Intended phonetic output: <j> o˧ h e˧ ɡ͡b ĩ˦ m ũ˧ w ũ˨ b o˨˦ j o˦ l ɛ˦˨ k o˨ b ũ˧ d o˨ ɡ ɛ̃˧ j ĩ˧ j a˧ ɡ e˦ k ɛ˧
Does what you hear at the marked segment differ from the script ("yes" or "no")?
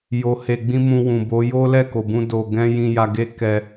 no